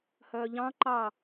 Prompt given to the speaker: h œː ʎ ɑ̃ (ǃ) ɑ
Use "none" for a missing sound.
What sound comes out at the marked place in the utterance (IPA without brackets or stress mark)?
ǃ